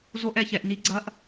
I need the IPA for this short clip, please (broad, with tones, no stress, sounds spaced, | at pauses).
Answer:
z o˦ ʔ ɛ˨ ç ɛ˨ ʔ n i˦ ɡ͡ǀ ɐ˦ ʔ